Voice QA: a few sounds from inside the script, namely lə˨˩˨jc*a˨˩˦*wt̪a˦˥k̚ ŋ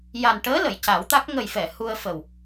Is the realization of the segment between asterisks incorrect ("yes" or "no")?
no